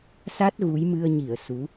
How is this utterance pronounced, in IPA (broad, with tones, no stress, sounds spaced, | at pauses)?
s a˦˥ t̚ ɣ u˨˦ j m ɨ˧ ə̯ ɲ i˧˩ ə̯ s u˨˦